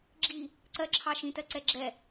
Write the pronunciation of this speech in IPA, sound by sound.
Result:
ɡ͡ǁ i | ǀ ɜ ǁʰ ɑ ʃ ĩ t ɜ ǀ ɛ ɡ͡ǁ ɛ

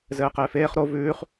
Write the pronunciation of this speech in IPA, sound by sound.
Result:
z ɘː q ɪː f eː χ ɾ o v ʉː χ

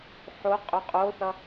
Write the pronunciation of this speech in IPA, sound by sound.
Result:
ħ o qʼ ʏ qʼ o θ ʌ

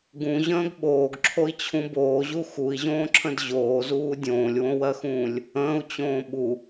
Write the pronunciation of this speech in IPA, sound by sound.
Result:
ɡ ũ ʑ ə̃ː ɡ ɓ oː ɡ ǁʰ o i̯ t͡ɕʰ ũ b oː ʑ u x u i̯ ʑ õː ǁʰ ə̃ d ʑ oː z uː dʲ õː lʲ w õ w ɜ x ũː lʲ | ə̃ː u̯ t͡ɕ õː ɓ u

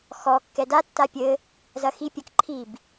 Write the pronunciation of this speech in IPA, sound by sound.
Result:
x ɔ kː ɛ d a tː a pʲ ɘ | z ɐ x i pʲ ɐ k ǃʰ i b

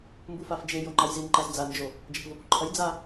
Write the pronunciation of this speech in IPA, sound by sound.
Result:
m b u f a f d͡ʒ e j o ŋ͡ǃ a j z i n ǃ a z d͡z a n d͡ʒ o | d͡ʒ ɐ p v o p u ǃʰ ɐ j d͡z a

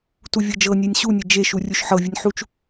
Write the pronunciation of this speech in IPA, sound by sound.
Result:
t u vʲ ɤ d͡ʒ ɤ nʲ e nʲ ɕ u nʲ ɤ d͡ʒ e ʃ u rʲ u ʃ ħ ɤ vʲ u nʲ ħ u t͡ʃ

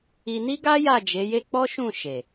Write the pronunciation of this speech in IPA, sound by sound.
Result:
i˧ n i˦ ɡ a˦ j a˦˨ d͡ʒ e˨˦ j e˦ k͡p ɔ˦ ʃ ũ˦˨ ʃ e˨

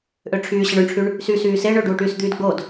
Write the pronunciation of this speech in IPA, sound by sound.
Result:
ʔ ø ʈ͡ʂʰ yː ɕ ɐ ɳ ø ɳ ʈ͡ʂʰ y ɳ | s y s yː s e ɳ ø ɖ uː ʈ yː s d̪ yː d ɡ͡b o d

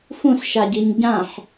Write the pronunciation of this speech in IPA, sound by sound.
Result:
f ũ s ʃ a ɟ i ɲ ɟ ã ħ

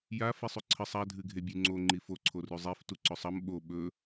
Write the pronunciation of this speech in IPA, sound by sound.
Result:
j a f i sˤ ʉ ǀʰ ɨ sˤ a dʱ ɨ ɡʱ e bʲ ʉ ŋ͡ǀ o ŋ͡ǃ i f o ǀʰ o r ʉ zˤ e f t u ǀ ɵ sˤ ɐ m ɓ o ɓ ɵ

